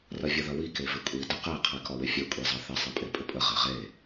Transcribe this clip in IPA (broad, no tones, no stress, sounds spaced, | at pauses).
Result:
r ɐ vʲ ɐ ð ɐ w i k e v ɪ kʷʼ i d ə q e qʰ i k ɒ w ɪ fʲ e kʷʼ i zˤ ɐ θ ɪ sˤ e pʼ e pʼ ɪ pʼ ə ʁ e ʁ e